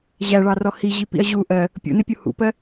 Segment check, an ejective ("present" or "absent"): absent